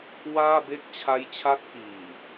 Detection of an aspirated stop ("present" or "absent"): present